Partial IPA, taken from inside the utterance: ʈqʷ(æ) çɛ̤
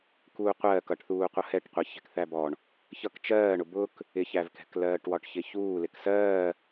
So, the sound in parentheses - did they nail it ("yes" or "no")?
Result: no